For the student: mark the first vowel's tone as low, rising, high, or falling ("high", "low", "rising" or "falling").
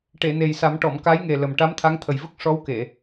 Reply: low